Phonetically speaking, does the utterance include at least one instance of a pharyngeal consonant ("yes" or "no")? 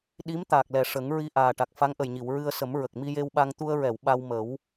no